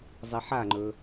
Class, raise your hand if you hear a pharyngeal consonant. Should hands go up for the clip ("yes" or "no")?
yes